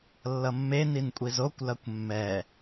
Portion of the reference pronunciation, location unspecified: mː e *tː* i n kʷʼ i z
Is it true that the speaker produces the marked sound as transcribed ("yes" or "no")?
no